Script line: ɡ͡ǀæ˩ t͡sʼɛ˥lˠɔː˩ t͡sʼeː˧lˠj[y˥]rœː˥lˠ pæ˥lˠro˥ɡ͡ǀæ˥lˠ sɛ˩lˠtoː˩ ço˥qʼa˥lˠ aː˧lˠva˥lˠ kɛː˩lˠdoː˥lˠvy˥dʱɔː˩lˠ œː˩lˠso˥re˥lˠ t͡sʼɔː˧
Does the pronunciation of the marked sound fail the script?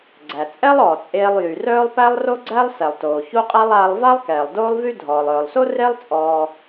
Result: yes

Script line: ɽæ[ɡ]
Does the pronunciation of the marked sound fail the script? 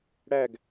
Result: no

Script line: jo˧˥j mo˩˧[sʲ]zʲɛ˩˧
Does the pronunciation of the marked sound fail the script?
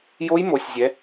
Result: no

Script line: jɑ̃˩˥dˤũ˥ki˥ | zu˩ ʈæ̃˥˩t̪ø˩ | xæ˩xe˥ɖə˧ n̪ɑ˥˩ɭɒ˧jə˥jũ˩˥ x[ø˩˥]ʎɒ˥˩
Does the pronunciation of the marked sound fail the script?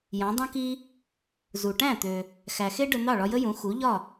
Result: yes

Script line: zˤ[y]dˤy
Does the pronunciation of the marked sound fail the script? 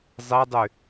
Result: yes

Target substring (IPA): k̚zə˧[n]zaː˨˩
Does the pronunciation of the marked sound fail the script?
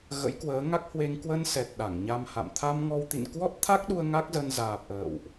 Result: no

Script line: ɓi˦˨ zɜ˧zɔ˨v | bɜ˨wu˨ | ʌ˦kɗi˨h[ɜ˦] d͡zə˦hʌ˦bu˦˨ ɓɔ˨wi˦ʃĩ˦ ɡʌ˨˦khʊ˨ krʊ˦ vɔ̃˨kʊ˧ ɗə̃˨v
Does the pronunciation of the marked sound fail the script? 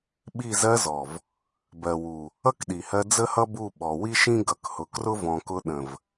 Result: yes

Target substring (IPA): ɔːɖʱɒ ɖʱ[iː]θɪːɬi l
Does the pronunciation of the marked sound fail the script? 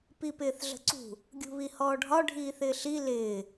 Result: no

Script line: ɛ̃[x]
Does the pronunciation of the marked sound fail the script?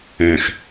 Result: no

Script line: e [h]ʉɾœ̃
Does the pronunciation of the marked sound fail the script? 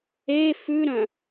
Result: yes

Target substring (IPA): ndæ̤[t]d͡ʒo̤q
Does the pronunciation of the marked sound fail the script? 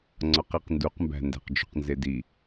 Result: yes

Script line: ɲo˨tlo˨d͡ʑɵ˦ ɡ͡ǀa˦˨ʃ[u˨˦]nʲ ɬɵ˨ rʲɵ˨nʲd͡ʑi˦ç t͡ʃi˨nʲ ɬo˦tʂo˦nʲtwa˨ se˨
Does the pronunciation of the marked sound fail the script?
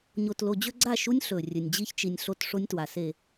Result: yes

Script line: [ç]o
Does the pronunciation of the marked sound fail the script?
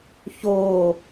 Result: no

